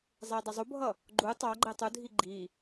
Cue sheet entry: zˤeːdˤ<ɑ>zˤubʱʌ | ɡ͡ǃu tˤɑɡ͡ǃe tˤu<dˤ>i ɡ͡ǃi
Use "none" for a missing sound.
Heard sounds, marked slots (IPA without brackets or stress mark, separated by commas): ʌ, dʱ